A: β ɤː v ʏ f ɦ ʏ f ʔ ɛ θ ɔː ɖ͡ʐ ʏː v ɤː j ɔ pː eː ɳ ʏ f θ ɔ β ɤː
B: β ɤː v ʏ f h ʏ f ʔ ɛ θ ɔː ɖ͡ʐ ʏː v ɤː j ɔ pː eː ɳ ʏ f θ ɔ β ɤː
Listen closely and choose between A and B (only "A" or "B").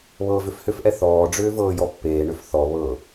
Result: B